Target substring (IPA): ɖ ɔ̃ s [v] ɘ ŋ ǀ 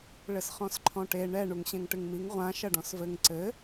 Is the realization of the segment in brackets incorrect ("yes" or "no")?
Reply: no